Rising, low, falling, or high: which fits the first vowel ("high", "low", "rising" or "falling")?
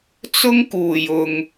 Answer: high